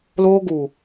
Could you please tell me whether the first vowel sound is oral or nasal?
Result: oral